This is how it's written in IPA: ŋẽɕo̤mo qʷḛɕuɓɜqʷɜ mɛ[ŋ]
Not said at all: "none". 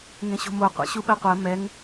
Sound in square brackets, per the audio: ŋ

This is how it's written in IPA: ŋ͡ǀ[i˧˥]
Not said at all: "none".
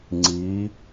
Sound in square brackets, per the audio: i˧˥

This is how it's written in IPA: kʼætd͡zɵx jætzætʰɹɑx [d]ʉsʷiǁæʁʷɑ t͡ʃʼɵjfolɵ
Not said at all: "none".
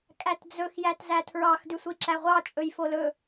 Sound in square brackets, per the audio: d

